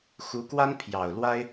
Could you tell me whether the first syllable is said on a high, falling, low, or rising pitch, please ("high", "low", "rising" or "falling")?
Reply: rising